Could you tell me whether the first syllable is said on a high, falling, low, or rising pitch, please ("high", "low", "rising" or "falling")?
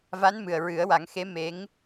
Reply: rising